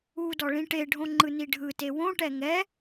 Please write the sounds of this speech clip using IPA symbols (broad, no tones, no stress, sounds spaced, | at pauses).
u d ɔ ɭ ĩ ʈ e ɖʱ õ ŋ͡ǃ ɯ n i ɖʱ ɯ t e w õ ʈ ɛ ŋ ɛ